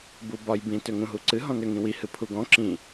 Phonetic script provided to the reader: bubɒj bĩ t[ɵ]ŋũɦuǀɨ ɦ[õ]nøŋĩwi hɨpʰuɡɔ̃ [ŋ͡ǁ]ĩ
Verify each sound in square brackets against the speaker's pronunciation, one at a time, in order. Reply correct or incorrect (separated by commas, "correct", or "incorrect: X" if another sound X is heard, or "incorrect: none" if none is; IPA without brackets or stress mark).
incorrect: ø, incorrect: ɔ̃, incorrect: ǁ